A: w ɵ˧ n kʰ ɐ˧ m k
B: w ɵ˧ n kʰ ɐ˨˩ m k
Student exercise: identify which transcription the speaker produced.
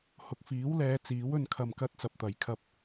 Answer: A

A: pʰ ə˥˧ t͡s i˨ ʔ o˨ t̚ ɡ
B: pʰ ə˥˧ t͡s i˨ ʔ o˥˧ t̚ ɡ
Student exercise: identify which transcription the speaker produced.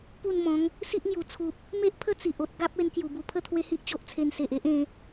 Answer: A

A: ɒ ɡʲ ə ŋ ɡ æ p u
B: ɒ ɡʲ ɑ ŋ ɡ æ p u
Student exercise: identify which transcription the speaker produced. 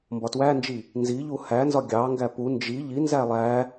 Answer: B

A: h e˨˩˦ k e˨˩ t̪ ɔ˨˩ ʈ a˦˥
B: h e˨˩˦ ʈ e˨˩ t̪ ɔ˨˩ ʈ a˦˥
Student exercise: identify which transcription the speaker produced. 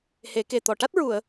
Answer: A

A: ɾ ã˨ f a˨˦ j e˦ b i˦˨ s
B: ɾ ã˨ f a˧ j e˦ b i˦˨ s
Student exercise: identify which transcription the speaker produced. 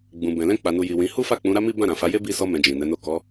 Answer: A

